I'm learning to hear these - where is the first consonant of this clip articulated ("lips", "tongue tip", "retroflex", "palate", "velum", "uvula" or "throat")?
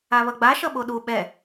lips